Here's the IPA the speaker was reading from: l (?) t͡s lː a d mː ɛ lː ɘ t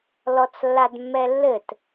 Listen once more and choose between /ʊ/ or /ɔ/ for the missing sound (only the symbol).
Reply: ɔ